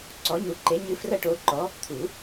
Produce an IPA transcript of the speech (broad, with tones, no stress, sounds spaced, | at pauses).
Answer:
ǀ ɔ˨˥ ɲ u˨˥ ǃ e˨˥ ɲ ɨ˨˥ f r ɐ˦ ʈ o˨˥ ǃ ɔ˨˥ | t̪ʰ u˨˩˦